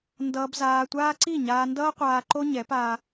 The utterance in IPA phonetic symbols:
n d ʌː˧ b z aː˧ tʷ aː˦ ǀ i˦˨ ɲ aː˧ n d ʌː˦ qʷ aː˧ ǃ o˦ ɲ ɛ˨˦ p aː˧

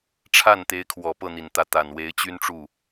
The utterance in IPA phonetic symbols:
ʈ͡ʂʰ a˥˩ n t̪ e˧˥ ɪ̯ kʰ w ɔ˨˩ p ɤ˥˩ n̪ i˨˩ n t̪ ä˧˥ t̪ a˨˩ n w e˧˥ ɪ̯ t͡ɕ y˥ n ʈ͡ʂ u˥˩

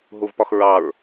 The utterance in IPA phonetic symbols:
ɦ u v p ɒ x ɹ ɑ ɹ

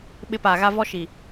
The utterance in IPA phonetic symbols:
ɓ ɪ˦ p aː˨ ɣ a˦ v ɔ˦ ʃ i˨

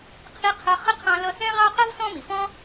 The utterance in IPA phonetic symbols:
qʰ i˦ qʰ ʌ˦ χ ə˥ qʰ ɑ̃˦ l ʌ˦ s ɛ̃˥ ʁ ɑ˥ q ʌ˥ v s ɔ̃˦ m i˩ f ɔ̃˥

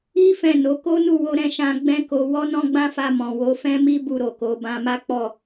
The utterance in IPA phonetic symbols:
i˦ f ɛ̃˦˨ n o˨˦ k o˦ n u˦˨ w o˧ ɾ ɛ̃˧ ʃ ã˧ ɡ͡b ɛ̃˦ k o˧ w ɔ˦ n ɔ̃˦ ɡ͡b ã˦ f a˧ m ɔ̃˨ w o˨˦ f ɛ̃˦ m i˦ b u˦˨ ɾ o˨ k o˨˦ b ã˧ m a˦ k͡p ɔ˦˨

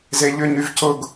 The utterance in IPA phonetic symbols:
z e ʎ ʏ ɲ y v c ʊ ɡ

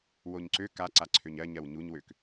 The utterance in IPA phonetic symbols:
w o ɲ ǀ ø k a ǀ a ǀʰ ø ɲ ɜ ɲ ɜ w ɲ u ɲ w ø k

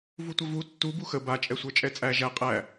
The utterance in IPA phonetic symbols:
v u tʷ ɐ v u tː u b u x ə b a t͡ʃʼ ɛ sʷ ə˞ t͡ʃʼ ɛ t͡sʼ æ ʒ æ qʼ æ

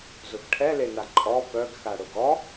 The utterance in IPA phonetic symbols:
z ʊ x ʈʰ ɛ l e n a ǃʼ ɔ p œ ɡ x a ɽ ʊ ɡ ɔ

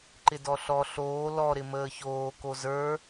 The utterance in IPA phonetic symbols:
ǃ ɪ d ɔ ɬ ɔ ɬ oː l ɔ ɾ ɪ m əː ç oː k o z ə˞

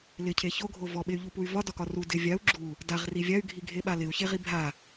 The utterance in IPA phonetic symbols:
l ɪ cʰ e ç o ɡʱ o v ɔ ɓ e y̯ ʎ u p u y̯ v ɒ d ɒ k ɒ r u d ɪ vʲ a u̯ ɡ͡ǁ u | d a ʁ r i vʲ a y̯ ɡʱ i ɡʱ e ɓ a l ɪ u̯ ç e ʁ i bʱ a

